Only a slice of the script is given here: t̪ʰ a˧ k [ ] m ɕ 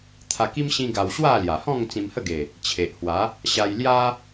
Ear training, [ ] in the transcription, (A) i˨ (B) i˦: B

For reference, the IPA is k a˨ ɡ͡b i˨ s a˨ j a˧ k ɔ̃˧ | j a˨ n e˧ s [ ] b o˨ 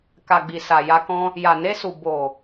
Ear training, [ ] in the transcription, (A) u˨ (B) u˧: A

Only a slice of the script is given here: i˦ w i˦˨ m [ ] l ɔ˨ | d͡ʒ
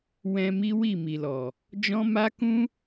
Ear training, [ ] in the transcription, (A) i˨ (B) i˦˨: A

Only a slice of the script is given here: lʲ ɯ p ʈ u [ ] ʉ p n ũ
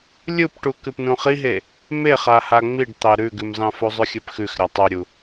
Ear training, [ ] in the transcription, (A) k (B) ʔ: A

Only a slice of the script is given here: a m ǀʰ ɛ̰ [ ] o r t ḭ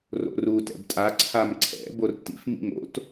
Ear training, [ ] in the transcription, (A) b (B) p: A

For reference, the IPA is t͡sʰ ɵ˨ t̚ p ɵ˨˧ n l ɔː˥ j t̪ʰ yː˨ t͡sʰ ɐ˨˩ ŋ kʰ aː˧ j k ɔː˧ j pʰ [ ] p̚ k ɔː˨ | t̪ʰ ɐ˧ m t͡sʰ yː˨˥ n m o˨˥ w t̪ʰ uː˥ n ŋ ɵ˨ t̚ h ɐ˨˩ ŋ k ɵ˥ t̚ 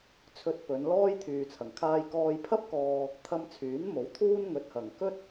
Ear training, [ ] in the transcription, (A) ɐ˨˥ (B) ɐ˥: B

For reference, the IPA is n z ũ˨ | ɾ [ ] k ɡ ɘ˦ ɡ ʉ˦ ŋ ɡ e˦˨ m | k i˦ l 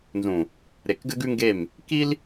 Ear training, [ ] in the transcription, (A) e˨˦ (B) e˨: B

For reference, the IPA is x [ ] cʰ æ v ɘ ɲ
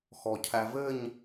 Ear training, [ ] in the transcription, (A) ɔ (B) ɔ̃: A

